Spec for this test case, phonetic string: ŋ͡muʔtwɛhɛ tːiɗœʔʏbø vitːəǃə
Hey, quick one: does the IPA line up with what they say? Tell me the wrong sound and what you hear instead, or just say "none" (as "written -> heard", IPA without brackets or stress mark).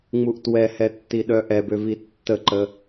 ʏ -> ɛ